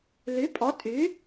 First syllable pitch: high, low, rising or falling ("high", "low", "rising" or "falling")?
rising